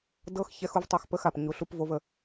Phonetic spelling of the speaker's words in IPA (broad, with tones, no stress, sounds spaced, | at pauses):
d ɤ˦ x ç ɛ˦ x u˦ v tˤ o˦ x p ə˦ x a˨ p ɲ u˨˦ ɬ u˦ p v o˦ v ə˧